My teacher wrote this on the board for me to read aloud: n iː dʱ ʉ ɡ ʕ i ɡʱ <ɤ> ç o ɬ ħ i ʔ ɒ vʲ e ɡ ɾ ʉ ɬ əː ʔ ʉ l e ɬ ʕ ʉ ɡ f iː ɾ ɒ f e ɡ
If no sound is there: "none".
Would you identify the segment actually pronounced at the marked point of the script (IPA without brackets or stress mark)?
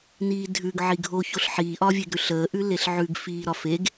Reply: o